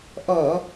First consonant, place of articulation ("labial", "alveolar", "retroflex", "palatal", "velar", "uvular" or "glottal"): glottal